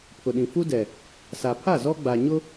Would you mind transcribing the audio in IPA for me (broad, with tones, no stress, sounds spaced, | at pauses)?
pʰ ʊ˨ ɗ ĩ˨ f u˦ d ɛ˨ | s a˨ pʰ a˦˨ z ɔ˦ ɡ͡b a˨ ɲ ʊ˦